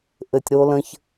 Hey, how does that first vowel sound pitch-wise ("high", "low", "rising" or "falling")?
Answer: low